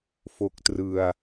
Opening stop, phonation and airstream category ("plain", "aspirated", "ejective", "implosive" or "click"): plain